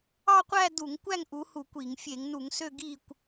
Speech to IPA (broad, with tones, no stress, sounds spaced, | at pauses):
ɑ˥˧ qʷ æ˥˧ d u˧˩˧ ŋ kʷ æ˥˧ ŋ ʔ u˨˦ h u˧˩˧ kʷ i˧˩˧ ŋ fʲ e˧˩˧ ŋ n u˧˩˧ ŋ s ø˥˧ ɡ i˥˧ kʷ